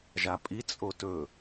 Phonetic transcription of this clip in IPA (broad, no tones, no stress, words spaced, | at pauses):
ʒapʼi t͡sʼotɵ